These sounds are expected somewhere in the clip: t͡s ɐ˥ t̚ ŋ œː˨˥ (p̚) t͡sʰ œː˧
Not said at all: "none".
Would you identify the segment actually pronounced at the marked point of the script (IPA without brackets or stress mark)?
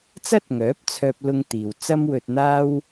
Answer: p̚